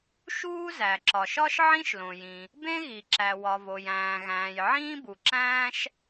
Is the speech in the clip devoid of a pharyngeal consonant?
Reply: no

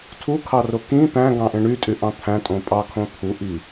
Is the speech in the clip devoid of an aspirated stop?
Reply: no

